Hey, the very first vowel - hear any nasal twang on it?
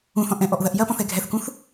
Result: yes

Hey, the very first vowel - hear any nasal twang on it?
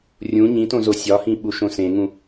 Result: yes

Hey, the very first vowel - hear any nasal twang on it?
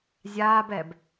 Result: no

